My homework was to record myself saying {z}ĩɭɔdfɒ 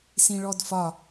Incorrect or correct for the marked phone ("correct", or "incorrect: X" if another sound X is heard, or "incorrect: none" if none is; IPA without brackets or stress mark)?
incorrect: s